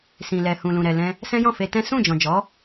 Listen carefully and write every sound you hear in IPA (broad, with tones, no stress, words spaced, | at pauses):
sĩ˨lɛ˨ hũ˨lũ˨ɾɛ˨ lɛ̃˧ | sɛ̃˦jɔ̃˦˨fe˧tɛ̃˦ sũ˦˨d͡ʒɔ̃˨d͡ʒɔ˨˦